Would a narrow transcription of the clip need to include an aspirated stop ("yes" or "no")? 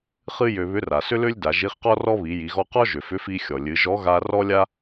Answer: no